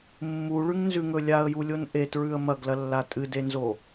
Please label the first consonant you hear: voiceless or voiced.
voiced